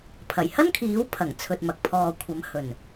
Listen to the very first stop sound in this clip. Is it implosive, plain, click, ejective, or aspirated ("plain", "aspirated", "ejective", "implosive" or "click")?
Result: aspirated